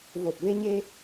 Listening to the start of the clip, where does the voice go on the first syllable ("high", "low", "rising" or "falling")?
low